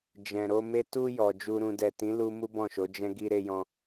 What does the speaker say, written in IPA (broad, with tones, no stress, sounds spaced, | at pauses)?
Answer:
d͡ʒ ɛ̃˨ ɾ o˧ m e˦ t u˧ j ɔ˨ d͡ʒ u˨ ɾ ũ˨ d ɛ˨ t ĩ˨˦ l u˧ m u˦ b ɔ̃˦˨ ʃ o˨˦ d͡ʒ ɛ̃˧ ɡ i˧ ɾ e˧ j ɔ̃˧